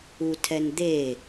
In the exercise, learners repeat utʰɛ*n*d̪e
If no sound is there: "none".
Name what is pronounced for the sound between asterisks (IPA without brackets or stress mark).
n